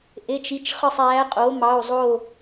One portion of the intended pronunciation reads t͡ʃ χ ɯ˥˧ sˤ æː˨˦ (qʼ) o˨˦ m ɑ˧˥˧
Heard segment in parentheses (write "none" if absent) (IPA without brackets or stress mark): qʼ